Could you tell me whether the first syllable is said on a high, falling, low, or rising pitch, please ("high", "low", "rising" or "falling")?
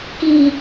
low